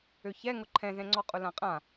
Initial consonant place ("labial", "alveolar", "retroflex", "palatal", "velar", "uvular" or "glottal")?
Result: palatal